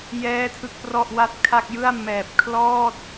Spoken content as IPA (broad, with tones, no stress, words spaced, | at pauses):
jɛː˥˩tʰɯ˥˩k̚prɔ˥˩ʔwa˥˩t̚ kʰa˥˩k̚jɯ˥˩a̯ mɛː˨˩p̚kʰlɔː˥˩t̚